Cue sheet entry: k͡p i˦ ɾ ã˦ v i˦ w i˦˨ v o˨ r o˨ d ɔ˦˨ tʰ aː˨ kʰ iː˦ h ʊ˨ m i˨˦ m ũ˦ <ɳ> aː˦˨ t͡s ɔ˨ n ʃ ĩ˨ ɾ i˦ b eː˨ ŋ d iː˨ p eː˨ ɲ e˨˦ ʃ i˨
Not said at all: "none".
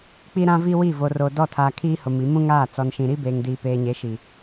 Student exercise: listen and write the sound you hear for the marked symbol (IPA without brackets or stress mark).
ŋ